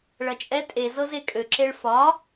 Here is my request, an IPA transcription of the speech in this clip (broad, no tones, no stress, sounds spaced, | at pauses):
ɭ ɐ t͡ʃʼ ɛ tʼ e z ɤ z e kʼ ø ǁ e ɭ f ɒ